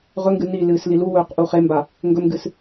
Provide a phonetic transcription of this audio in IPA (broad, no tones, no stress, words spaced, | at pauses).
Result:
ʁɵŋɡɨ nilɨːs liluwɵːq ʔuχemba | ŋɡɵmɡɨs